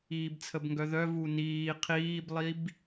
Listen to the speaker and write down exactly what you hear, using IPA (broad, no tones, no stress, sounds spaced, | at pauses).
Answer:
iː b t͡sʰ ə b ŋ ɡ œ ð œ v u n iː qʰ iː b lˠ i b